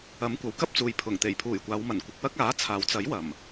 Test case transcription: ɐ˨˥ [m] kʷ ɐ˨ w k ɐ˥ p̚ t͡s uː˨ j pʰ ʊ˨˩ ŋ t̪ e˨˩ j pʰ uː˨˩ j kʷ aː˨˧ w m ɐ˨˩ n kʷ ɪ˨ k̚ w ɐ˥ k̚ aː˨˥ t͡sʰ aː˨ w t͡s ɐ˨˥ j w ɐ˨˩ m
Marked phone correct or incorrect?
correct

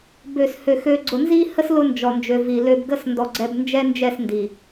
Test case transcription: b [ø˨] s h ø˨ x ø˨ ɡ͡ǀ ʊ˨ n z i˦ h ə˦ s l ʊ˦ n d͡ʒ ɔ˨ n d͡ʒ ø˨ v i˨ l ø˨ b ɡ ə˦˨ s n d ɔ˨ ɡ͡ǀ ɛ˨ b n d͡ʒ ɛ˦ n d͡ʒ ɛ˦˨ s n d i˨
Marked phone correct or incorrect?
correct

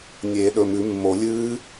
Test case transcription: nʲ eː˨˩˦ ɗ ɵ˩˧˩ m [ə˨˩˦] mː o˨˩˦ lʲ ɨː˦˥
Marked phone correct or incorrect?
incorrect: ʉ˨˩˦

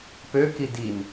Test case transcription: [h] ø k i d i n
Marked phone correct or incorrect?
incorrect: p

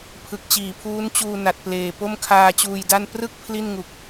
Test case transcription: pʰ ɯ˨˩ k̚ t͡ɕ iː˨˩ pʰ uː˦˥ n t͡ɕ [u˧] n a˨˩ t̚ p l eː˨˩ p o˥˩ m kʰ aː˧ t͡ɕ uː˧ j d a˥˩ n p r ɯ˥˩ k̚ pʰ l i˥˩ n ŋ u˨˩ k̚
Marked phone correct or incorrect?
incorrect: uː˧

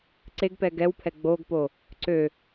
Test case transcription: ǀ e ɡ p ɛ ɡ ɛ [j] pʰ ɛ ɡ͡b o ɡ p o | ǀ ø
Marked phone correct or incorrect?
incorrect: w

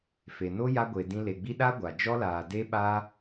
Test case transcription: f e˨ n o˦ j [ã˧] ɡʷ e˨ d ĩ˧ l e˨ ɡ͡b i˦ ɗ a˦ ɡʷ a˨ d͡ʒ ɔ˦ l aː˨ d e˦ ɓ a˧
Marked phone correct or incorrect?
incorrect: a˧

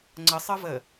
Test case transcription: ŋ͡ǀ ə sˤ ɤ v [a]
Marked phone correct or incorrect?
incorrect: ə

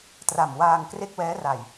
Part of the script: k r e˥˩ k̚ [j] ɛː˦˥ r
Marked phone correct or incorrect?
incorrect: w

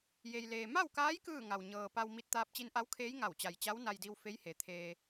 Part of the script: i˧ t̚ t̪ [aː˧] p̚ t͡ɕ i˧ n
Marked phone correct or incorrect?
correct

